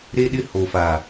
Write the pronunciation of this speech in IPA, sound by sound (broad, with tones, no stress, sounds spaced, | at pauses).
ɾ e˦ ɗ ɪ˦ h o˨ f a˨